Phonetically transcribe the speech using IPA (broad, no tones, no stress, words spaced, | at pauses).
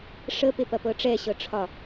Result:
ʂə pepɐpɤʈ͡ʂɛ ɕɤʈ͡ʂʰɒ